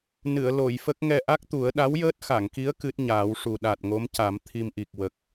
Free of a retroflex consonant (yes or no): no